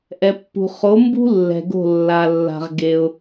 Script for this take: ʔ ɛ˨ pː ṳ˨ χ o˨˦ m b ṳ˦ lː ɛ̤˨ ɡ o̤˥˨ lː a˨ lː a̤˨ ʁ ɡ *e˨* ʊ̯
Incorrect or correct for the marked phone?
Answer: correct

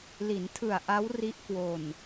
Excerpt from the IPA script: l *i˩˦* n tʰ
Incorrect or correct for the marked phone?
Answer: correct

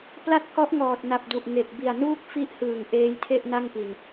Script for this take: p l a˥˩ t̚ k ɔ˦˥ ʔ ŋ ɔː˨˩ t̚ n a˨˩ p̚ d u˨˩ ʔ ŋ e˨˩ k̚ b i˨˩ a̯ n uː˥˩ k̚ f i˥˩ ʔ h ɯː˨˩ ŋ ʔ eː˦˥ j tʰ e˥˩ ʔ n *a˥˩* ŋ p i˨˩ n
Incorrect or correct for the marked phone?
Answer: correct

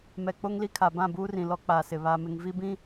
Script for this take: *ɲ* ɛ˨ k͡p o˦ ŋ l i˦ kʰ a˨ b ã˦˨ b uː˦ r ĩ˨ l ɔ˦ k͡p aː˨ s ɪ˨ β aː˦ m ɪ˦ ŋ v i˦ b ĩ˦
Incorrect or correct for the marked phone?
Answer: incorrect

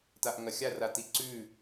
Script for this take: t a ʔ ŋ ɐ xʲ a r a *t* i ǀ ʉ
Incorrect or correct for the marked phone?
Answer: correct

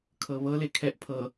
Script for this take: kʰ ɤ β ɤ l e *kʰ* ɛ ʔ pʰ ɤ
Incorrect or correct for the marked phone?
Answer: correct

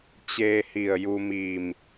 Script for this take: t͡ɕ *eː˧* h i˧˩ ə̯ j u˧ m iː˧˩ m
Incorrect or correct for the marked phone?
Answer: correct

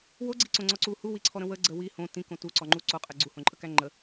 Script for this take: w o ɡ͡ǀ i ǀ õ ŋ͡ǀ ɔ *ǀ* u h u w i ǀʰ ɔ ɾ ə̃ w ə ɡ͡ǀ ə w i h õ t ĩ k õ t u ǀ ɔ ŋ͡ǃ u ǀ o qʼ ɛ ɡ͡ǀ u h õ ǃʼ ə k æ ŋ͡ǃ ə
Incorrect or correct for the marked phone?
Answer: correct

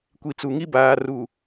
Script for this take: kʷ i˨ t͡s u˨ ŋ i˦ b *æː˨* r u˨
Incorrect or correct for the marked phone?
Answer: incorrect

